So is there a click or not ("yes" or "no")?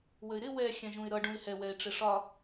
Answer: no